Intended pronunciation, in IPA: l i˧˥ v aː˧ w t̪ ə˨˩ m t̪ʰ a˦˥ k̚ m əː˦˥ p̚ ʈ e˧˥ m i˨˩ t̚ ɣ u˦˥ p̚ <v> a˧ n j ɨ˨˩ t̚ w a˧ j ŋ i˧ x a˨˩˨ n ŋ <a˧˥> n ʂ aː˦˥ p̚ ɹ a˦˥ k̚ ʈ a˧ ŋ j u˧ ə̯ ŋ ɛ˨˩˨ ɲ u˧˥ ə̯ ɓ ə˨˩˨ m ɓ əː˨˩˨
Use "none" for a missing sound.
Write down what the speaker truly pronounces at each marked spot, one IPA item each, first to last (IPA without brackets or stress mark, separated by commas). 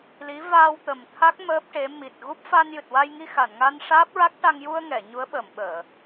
f, a˧